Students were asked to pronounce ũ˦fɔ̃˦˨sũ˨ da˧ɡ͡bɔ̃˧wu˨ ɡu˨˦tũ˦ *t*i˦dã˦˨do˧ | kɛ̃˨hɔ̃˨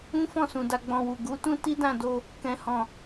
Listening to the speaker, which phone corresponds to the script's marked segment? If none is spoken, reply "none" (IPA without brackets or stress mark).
t